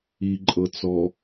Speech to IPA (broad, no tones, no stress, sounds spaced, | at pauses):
i ǃʼ ɤ t͡s ɔ